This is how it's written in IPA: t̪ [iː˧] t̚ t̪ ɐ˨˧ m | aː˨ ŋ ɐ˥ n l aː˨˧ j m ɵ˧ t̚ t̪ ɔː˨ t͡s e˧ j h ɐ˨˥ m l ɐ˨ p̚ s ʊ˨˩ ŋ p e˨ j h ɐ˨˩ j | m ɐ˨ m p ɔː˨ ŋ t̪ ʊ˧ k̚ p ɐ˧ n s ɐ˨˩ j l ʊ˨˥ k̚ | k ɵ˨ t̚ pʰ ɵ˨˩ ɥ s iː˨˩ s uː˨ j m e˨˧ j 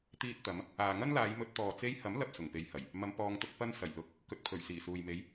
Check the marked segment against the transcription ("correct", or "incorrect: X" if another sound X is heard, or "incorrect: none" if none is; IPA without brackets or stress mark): correct